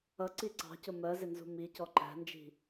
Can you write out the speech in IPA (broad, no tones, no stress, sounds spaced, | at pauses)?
ʌ ǀ i ǀ ɑ̤ c ʊ m ɜ z ɪ n z ṳ m i c ɔ ǃ æ̤ n d͡ʒ i̤